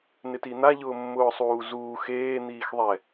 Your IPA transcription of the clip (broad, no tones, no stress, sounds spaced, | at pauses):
n ɪ t i n̪ a ʎ ʊː mː ʊː sˤ uː z uː x eː n̪ iː x ðˤ ɛ